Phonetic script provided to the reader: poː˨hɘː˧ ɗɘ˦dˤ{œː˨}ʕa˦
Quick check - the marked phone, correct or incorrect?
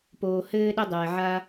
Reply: incorrect: ɛː˨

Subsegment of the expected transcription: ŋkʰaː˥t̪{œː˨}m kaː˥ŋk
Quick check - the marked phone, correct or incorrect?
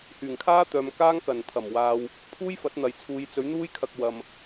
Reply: correct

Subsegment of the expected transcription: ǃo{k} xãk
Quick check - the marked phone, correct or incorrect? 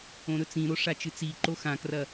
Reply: incorrect: none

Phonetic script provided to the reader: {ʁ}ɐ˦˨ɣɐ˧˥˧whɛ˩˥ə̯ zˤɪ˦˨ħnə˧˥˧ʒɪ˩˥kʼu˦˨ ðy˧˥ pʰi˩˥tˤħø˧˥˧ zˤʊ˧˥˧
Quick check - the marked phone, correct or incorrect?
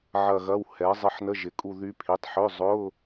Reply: incorrect: ʕ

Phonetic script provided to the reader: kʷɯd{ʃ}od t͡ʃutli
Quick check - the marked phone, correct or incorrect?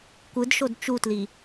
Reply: correct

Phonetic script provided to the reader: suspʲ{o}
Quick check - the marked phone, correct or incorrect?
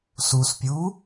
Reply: incorrect: u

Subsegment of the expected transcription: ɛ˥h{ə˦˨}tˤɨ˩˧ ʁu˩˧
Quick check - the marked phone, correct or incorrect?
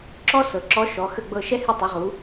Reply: incorrect: ɨ˦˨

